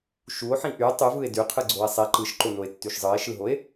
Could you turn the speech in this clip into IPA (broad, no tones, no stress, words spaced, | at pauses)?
ʃuo̯ħĩ ʔy tˤyvɯe̯ dyqʰɯɡ͡ǀoe̯ sˤe ǃɯʃǃonoe̯tːyʃ zˤɯe̯ʃɯɦoe̯